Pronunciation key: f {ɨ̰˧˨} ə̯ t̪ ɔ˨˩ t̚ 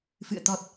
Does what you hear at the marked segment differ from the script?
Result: no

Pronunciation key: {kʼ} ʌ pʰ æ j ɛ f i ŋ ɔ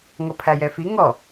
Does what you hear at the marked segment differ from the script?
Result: yes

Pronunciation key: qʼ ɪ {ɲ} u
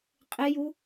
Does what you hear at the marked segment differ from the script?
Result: yes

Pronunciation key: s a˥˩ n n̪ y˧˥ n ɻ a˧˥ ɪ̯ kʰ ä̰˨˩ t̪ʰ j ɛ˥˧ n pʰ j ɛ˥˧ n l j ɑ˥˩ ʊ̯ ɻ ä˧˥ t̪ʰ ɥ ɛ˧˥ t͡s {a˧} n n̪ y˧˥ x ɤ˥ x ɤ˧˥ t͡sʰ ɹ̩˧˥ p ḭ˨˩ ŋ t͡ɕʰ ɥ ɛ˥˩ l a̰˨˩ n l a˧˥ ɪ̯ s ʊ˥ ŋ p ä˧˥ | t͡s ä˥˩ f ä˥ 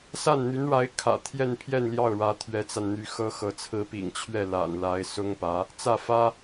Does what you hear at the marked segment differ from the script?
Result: no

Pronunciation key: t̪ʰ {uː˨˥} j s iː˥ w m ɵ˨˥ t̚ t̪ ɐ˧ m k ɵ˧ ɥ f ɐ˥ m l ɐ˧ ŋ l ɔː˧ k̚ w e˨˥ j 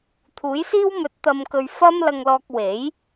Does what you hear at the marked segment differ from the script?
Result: no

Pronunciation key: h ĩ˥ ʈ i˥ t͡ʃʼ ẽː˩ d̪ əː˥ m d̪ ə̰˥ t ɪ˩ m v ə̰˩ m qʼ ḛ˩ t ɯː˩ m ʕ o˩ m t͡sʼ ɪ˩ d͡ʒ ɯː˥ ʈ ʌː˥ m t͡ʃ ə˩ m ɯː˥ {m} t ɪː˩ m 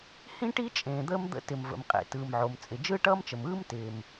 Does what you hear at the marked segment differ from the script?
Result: no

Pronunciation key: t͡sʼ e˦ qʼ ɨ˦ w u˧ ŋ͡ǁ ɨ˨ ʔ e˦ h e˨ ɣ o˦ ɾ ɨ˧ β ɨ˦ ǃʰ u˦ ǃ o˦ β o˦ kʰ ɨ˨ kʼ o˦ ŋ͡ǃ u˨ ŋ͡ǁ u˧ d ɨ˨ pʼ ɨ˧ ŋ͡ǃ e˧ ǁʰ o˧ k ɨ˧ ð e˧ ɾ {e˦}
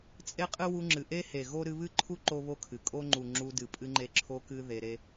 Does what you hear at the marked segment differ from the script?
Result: no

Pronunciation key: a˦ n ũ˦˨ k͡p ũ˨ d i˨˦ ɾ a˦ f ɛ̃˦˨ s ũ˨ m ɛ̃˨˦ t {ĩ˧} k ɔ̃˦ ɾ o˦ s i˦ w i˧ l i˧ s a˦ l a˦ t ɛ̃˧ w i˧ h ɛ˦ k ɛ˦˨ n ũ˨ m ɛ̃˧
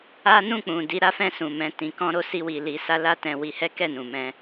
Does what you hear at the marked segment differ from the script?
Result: no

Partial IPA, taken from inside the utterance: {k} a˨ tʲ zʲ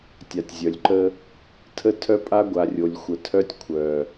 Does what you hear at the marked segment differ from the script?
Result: yes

